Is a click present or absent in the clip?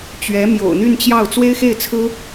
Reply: absent